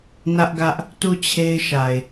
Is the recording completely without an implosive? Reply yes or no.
yes